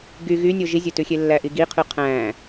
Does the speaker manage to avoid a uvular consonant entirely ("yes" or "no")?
no